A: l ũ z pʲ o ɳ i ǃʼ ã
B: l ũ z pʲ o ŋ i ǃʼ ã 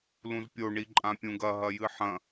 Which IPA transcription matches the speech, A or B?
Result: A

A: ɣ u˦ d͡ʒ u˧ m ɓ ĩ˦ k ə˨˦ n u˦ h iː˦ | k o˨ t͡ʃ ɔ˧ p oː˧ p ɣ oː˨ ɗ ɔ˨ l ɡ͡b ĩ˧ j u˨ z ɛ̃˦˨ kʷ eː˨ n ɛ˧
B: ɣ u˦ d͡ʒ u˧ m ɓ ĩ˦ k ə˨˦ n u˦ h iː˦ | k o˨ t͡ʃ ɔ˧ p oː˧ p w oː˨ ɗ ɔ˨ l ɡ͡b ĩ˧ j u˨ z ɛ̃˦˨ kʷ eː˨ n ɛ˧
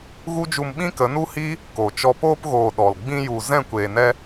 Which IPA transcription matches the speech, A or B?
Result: A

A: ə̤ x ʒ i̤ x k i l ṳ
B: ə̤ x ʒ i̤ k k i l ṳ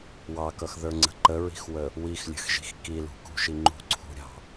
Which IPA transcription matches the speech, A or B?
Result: A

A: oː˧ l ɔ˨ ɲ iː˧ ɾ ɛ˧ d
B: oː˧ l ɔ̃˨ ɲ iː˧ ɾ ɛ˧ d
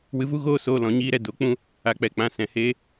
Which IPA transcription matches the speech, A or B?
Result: B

